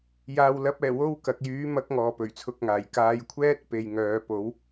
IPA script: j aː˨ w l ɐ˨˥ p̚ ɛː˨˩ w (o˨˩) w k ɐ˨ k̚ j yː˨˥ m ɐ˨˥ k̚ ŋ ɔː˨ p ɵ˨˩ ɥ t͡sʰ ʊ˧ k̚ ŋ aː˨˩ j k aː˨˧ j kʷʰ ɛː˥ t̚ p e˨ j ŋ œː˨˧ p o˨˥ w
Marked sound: incorrect: o˥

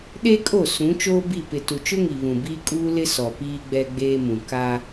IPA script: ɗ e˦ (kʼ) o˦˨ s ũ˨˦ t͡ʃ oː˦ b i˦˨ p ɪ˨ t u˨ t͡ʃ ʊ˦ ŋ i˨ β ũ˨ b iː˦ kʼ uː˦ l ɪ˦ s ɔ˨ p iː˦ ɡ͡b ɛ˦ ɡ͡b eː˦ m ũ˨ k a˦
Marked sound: correct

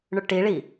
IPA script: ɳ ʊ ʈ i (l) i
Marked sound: incorrect: ɭ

